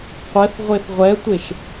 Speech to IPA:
qʷ ɛ θ ʁʷ e θ ʁʷ ɛ tʷ e ʃ

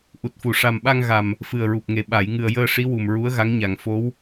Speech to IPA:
ʔ u˨˩ t̚ f u˨˩˨ ʂ a˨˩ m ɓ a˧ ŋ ɣ a˨˩ m | f ɨ˨˩ ə̯ ɹ u˨˩ p̚ ŋ e˨˩ ɓ a˨˩˨ j ŋ ɨ˨˩ ə̯ j əː˧ ʂ i˧˥ w u˨˩ m ɹ u˧˥ ə̯ ɣ a˧˥ ŋ ɲ a˨˩ ŋ f o˧˥ w

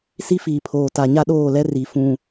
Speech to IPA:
s i˦ f iː˨ pʰ oː˨ t a˨ ɲ a˦ ɗ oː˦˨ l ɛ˦ r i˨ f ũ˦˨

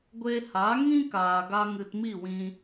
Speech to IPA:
ɡʷ e˧ h a˨˦ ŋ ĩ˦ k aː˨ ɡ a˦ ŋ ɨ˧ t m i˦˨ w ĩ˧

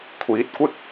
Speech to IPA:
kʷʰ iː˨˥ t̚ kʷ ɪ˥ k̚

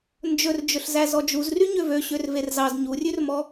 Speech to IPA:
n d͡ʒ ɵ r d͡ʒ ɵ ɬ z æ z ɔ d͡ʒ u z r y ɲ ø v ø ɕ ø r v e r z ɑ z ɲ u rʲ ʉ r m ɔ

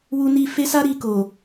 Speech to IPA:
w u˧ n i˧ f e˦ s a˦ ɾ i˧ k o˨

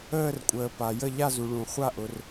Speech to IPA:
əː˥˧ r kʷʼ əː˧ p a˧ j ə˥˧ ʎ a˥˧ z u˧ ɭ ũ˧ χʷ a˥˧ ʔ ʊ˧ r

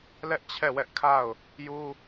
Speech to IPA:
l ɛ˦ ʔ t͡ɕʰ ɛ˦˨ w ɛ˦ ʔ kʰ a˦˨ ʊ̯ | j u˦

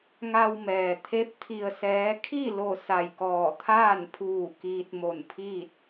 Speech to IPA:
ŋ a˧ w m ɛː˩ t̪ʰ e˧˥ p̚ t̪ʰ i˧ ə̯ s ɛː˧˥ kʰ i˥˨ l o˧˩ s a˧˩ j k ɔː˧˩ t̪ʰ aː˥˨ n pʰ uː˧˩ k iː˧ t̚ m o˧˩ n pʰ iː˥˨ t̚

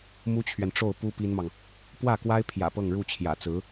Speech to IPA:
m u˥ t͡ɕʰ ɥ ɛ˨ n ʈ͡ʂ o˥˩ ʊ̯ p u˥ p i˥ n m ɑ˨ ŋ | p w ä˥˩ k w a˥ ɪ̯ pʰ j ä̰˨˩ p ɤ˥˧ ŋ ɻ u˥˩ t͡ɕʰ j ä̰˨˩ t͡s ɹ̩˧˥

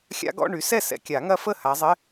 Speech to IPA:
xʲ a̰˦˥ ɡ ɔ̰˧˥˧ ɳ y˨˦ s ɛ˥˩ s ɛ̰˨ kʲ a˨˩˦ ŋ ɐ˦˥ f ə˥˩ h a˨˦ zˤ ɪ˧˥˧

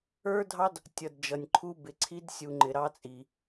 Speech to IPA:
ə˞˦ dʱ ɑ˦ d | tʲ ʌ˨ d d͡ʒ ʌ˨ nʲ ǃʰ u˦ b ɪ˨ ǀʰ i˦ d sʲ u˨ ŋ͡ǃ ɪ˨ ɾ ɑ˦ t͡sʼ i˨

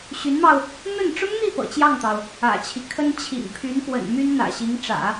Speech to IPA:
ɕ y˧˥ n m ɑ˧ ʊ̯ | n̪ ə˥˩ n ʈ͡ʂ ʊ˥ ŋ n̪ i˥˩ p ɤ̰˨˩ t͡ɕ j ɑ˥˩ ŋ t̪ ɑ˩ ʊ̯ | ä̰˨˩ t͡ɕʰ i˦ kʰ ə˥ n t͡ɕʰ ḭ˨˩ ŋ pʰ y˧˥ n p w ə̰˨˩ n m y˥ n n̪ ä̰˨˩ ɕ i˧˥ ŋ ʈ͡ʂ ä̰˨˩˦

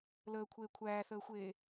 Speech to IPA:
l əː kʷʰ eː kʷʰ æː θ əː xʷ eː

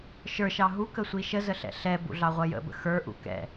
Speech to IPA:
ʃ ə˞ ʃ ɑ ɦ u k ə sʷ i ʃ ə z ə ɬ ɛ̰ ɬ ɛ b ṵ ɮ ɑ ʁʷ ʌ j ə̰ b ə̰ x ə˞ ʔ ṵ k ɛ̰

